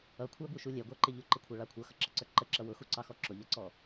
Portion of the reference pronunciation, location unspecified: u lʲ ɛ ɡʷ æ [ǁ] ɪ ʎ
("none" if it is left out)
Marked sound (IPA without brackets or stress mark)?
ǃ